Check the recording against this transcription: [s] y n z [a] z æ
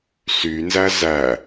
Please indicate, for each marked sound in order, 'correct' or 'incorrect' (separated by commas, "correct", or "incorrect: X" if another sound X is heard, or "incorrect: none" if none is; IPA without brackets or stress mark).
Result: correct, incorrect: æ